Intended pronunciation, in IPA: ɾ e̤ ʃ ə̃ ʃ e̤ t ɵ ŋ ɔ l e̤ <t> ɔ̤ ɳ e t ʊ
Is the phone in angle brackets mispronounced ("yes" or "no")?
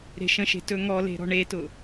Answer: yes